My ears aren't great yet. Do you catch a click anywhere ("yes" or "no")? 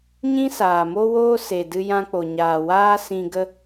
no